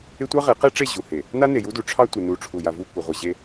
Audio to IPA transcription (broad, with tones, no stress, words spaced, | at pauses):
ɪ˦ tʷɑ˦ʁe˨˦qe˦ʈ͡ʂe˦˨ ʑu˨he˨ | na˦ne˨ju˦du˨ ʈ͡ʂʰɑ˦tʷɪ˨nu˨ ʈ͡ʂʰu˨ja˨vu˦˨kʷɪ˨ ʁʷɪ˨ʑe˦